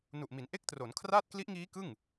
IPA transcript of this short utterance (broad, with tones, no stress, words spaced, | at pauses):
nu˨˩ʔmi˩˦n ʔe˥˩k̚tro˩˦nkʰraː˥˩t̚ kli˦˥ʔŋiː˦˥ kɯ˥˩ŋ